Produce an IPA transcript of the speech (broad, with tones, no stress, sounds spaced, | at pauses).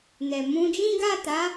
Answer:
n ɛ˨ m ũ˧ d͡ʒ ĩ˦ ɡ a˦˨ t a˨˦